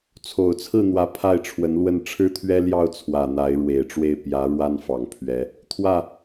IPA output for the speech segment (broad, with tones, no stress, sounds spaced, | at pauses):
t͡sʰ o˨˩ ʊ̯ t͡sʰ ɹ̩˥˩ n̪ w ä˧˥ pʰ a˥˩ ɪ̯ ʈ͡ʂʰ w ə˧˥ n l w ə˥˩ n ʈ͡ʂʰ ɻ̩˥ t̪ʰ ɥ ɛ˥ l j ɑ˥˩ ʊ̯ t͡sʰ w ä˨˩ n̪ a˧˥ ɪ̯ ɻ w e˨˩ ɪ̯ ʈ͡ʂ w e˥˩ ɪ̯ p j ä˧˥ ɻ w a˥ n f ɑ˨˩ ŋ pʰ ɥ ɛ˧˥ | t̪ʰ w ä˥˩